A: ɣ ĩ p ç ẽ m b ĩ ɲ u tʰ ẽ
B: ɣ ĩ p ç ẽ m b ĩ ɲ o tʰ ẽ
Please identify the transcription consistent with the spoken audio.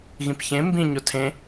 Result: B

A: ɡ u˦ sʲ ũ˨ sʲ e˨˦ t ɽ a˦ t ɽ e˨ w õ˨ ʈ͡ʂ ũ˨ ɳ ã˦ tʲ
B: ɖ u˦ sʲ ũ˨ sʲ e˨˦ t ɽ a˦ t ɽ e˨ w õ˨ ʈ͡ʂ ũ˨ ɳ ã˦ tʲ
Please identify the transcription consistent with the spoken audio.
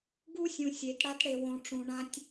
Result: A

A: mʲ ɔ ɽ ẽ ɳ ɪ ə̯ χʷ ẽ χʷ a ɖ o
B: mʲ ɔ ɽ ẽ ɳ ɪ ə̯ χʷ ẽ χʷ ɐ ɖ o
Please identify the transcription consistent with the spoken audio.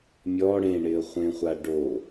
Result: A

